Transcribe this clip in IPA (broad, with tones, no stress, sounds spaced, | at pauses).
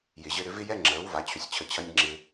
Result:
j ɪ˨ ʑ ɘ˧ ɾ ʏ˧ v ɪ˦ j ɛ˦ ŋ͡ǁ əː˨˦ w v a˨˦ t͡ɕʰ ʏ˧ sʲ t͡ɕʰ ə˧ t͡ɕʰ ɐ˦ nʲ ŋ͡ǁ ɪ˧